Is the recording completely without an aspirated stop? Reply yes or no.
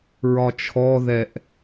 no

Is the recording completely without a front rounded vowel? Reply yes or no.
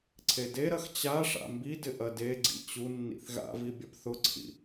yes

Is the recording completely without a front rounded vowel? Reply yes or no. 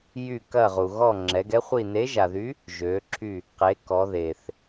no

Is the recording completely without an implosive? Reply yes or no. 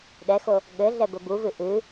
no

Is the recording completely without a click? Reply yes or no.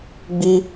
yes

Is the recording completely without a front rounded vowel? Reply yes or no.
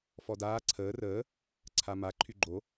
no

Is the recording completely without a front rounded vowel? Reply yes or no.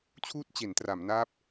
yes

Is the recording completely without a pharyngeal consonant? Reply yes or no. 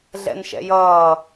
yes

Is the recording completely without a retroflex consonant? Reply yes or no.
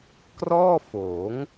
yes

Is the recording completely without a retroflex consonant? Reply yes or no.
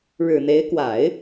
no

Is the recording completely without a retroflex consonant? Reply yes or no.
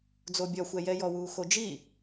yes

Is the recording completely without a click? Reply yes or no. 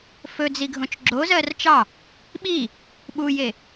no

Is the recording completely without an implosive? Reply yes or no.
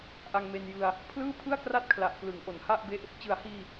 yes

